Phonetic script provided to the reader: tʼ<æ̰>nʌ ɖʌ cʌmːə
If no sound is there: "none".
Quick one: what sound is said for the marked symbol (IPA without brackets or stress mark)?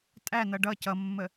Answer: æ